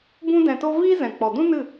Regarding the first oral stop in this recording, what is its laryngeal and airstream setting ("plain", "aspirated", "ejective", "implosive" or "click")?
plain